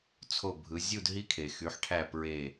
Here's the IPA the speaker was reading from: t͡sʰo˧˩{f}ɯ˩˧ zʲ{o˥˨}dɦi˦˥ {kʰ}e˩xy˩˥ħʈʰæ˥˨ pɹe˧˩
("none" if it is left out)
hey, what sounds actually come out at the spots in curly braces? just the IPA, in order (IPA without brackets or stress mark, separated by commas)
bʱ, u˥˨, kʰ